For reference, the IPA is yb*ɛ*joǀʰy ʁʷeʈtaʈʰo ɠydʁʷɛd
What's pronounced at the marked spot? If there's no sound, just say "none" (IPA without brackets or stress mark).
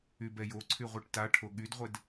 ɛ